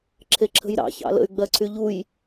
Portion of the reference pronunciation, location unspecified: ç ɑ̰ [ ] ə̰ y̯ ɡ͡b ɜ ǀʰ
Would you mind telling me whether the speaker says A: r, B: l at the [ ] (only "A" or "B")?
B